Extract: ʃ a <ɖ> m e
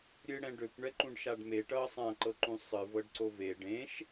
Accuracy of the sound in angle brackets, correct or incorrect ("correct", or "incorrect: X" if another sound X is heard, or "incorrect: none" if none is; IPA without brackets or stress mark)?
correct